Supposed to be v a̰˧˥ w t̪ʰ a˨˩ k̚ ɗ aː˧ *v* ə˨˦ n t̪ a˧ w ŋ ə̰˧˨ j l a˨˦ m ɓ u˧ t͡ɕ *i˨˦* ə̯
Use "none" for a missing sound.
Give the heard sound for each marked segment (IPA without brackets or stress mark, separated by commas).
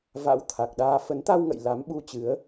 f, ɨ˨˦